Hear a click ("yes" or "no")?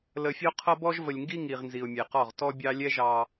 no